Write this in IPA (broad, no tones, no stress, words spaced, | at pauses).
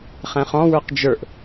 χɛ̃χɔ̃wə˞q d͡ʒə˞ʔ